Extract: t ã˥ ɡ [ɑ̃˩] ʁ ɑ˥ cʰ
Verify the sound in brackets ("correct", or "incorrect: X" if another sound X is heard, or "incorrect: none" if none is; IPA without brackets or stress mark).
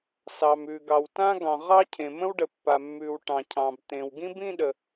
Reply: correct